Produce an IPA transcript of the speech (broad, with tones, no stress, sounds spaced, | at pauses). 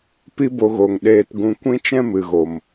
p i˦ b o˧ ɣ o˨ ŋ ɗ eː˧ t ɡ ũ˧ kʷ ĩ˦ t͡ʃ ɛ̃˦ m ɨ˨ ɣ o˨ m